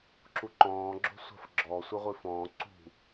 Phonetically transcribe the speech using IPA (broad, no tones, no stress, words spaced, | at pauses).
ǁuǃɔ̃ːɡ͡ǁo̤ sʷa̤fɡ͡ǁɔ sʷɛʁʷifɔ̃ː ǀṳ